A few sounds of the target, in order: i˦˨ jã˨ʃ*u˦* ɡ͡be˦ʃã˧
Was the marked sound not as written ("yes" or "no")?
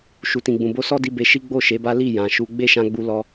yes